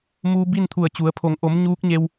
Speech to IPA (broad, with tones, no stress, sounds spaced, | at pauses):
m uː˧ b i˥˨ n t̪ʰ u˧˩ ə̯ t͡ɕ u˩˧ ə̯ pʰ o˩˧ ŋ ʔ o˩˧ m ɲ uː˧˥ k̚ ɲ e˧ w